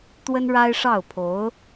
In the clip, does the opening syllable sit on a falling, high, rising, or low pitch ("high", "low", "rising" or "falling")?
high